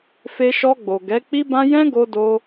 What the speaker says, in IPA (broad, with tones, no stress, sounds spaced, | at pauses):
f e˧ ʃ ɔ˧ ɡ͡b o˨ ɡ ɛ˨˦ k͡p i˦ b ã˦ j ɛ̃˦ ɡ o˧ d o˦